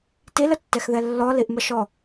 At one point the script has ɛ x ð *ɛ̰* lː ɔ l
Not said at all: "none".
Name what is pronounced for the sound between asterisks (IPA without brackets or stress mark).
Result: ɛ